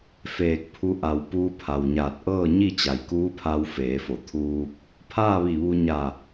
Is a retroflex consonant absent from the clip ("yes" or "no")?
yes